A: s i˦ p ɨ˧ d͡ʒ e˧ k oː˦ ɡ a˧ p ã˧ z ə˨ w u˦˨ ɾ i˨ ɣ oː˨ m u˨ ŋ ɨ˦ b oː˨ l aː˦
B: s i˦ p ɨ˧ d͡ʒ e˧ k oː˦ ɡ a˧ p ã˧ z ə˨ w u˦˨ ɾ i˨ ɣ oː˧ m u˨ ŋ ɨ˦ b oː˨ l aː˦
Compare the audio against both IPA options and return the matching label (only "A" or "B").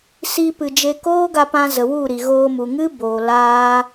B